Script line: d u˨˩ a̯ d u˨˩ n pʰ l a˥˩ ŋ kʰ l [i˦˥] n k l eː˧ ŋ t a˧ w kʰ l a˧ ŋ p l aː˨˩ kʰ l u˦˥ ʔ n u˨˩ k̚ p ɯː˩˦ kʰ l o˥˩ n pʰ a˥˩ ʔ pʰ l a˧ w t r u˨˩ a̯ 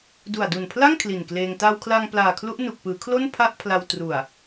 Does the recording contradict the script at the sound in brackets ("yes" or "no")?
yes